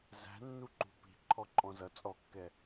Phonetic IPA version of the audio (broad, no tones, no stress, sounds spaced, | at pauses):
z æ̤ nː u ǃ ṳ p i̤ ǃʰ ɔ ǃʼ ɔ̃ z ʌ t͡sʼ ɔ kː ɛ